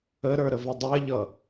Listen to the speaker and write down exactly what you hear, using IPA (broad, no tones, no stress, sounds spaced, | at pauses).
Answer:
ə ɾ ə˞ ɾ ə v ɪ dˤ ɛ ʎ ʌ